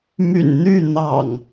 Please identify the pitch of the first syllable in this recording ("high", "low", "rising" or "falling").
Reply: low